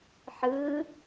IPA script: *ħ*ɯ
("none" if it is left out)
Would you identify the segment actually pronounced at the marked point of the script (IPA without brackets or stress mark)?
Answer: ħ